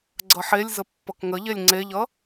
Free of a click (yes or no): no